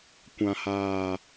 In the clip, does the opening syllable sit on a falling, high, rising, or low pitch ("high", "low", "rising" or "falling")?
low